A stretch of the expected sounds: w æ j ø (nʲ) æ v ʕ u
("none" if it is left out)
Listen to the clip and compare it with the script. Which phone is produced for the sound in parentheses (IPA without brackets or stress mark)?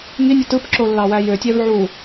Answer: tʲ